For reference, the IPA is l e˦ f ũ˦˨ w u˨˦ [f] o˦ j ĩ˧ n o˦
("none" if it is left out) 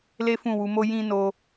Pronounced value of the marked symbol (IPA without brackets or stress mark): m